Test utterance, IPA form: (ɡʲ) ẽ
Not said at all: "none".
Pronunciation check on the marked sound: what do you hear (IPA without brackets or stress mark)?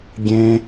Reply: ɡʲ